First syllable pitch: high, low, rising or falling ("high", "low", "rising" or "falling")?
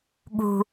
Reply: high